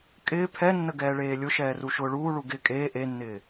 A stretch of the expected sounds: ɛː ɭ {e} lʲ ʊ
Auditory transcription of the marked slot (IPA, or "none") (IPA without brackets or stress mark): eː